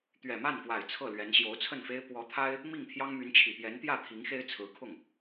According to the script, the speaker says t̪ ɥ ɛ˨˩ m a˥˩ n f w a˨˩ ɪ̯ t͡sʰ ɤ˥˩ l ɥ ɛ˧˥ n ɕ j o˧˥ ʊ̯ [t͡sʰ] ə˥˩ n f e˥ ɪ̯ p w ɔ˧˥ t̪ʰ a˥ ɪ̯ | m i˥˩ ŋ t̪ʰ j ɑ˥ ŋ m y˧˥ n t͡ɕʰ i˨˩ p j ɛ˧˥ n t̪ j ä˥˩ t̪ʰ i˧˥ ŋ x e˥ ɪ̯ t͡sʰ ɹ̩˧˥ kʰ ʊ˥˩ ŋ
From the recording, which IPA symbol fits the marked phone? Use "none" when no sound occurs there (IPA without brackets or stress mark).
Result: t͡sʰ